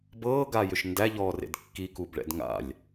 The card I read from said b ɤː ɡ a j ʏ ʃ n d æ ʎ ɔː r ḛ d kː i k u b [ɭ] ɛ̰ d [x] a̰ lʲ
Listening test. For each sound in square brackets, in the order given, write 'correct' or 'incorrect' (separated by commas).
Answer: correct, incorrect